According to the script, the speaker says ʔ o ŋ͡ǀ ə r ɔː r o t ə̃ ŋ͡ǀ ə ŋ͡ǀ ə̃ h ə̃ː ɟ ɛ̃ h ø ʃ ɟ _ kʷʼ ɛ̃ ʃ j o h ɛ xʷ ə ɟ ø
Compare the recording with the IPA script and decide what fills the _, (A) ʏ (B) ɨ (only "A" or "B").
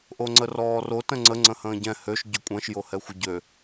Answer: A